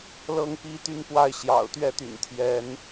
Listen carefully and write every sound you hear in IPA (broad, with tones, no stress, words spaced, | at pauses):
lɤ˦ŋpi˦t̪y˥˨npwa˥˨ɪ̯ ɕjɑ̰˨˩ʊ̯t̪ɥɛ˥˨t̪y̰˨˩n t̪ʰjɛ˨˦n